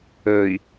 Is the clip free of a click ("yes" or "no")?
yes